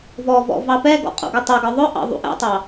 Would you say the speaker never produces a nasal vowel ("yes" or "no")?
yes